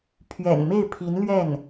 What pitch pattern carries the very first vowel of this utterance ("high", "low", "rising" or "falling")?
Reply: low